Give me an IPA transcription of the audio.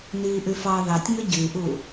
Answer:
n iː ʔ ʉ f ɑ ð ɑ tʲ ŋ ɵ ɟ ʉ ʔ u

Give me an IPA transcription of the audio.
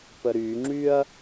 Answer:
p ə ɾ y ŋ͡ǁ y ɐ̯

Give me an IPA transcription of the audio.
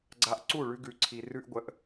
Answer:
ɡ͡ǀ a˦ ʔ ǀ u˦˨ ɭ ʉ˦ ɡ ʉ˧ ǀʰ i˧ r ʉ˦ ʔ ɡʷ ə˧ ʔ

